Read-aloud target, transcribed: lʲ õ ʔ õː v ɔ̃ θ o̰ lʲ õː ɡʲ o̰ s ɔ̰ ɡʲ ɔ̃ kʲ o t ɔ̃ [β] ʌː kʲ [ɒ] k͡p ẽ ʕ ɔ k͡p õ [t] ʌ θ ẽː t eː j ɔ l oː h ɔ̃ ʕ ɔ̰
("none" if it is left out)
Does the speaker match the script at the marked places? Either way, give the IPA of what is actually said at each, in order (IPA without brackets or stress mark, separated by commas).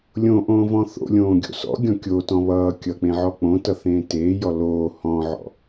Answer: β, ʌ, t